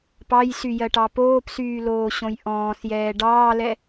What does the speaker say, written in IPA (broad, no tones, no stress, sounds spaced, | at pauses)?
p ɑ j s y j ɜ ʈ ɑ p oː p s yː l oː ɕ õ j ʔ ɔ̃ː s j ɛː ɖ ɑː l ɛ